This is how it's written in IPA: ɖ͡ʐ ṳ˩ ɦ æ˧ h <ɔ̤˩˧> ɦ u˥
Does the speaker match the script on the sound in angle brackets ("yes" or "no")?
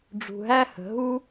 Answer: no